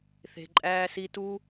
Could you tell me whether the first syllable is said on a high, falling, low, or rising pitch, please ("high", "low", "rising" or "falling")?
low